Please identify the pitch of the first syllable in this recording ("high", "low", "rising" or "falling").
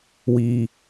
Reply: low